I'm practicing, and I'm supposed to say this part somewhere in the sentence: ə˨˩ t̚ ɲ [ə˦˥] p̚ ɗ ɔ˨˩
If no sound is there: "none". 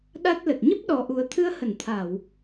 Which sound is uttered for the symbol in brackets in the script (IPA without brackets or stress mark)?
ə˦˥